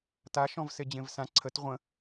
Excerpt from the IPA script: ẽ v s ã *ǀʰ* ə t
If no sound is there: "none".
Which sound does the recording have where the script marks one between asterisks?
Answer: ǀʰ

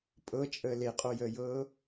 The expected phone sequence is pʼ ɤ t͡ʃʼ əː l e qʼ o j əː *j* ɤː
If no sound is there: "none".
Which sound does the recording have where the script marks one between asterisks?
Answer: j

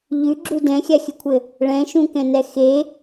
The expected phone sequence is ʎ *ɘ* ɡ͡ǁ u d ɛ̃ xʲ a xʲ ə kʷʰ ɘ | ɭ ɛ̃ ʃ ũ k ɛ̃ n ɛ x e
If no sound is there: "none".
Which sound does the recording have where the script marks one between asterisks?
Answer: ʉ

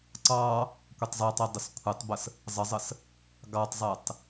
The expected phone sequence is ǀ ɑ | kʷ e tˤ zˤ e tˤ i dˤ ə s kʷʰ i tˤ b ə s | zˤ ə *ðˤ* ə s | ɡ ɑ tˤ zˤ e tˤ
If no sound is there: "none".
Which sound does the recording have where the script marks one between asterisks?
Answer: zˤ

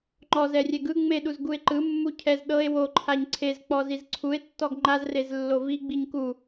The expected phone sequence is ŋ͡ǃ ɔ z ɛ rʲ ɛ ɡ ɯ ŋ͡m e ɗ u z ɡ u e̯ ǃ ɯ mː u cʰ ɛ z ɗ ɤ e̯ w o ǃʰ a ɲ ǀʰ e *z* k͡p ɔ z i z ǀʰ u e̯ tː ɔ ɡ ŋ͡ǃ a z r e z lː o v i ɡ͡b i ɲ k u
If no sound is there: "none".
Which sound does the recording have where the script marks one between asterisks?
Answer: z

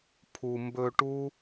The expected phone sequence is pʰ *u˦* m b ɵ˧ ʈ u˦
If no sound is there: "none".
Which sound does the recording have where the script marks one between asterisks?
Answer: u˨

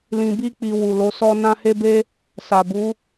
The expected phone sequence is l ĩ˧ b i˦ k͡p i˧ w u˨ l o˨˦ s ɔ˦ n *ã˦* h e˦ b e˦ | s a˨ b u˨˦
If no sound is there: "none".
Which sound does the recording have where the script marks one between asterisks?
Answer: ã˦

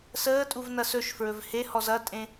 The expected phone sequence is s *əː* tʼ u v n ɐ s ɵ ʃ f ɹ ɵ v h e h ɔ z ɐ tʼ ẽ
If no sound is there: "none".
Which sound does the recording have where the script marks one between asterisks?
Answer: əː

